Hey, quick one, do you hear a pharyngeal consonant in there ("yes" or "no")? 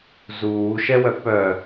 no